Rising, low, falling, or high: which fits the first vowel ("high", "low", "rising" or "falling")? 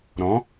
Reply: rising